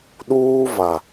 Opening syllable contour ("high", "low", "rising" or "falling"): high